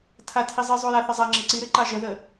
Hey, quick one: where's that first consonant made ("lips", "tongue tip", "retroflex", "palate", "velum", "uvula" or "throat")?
tongue tip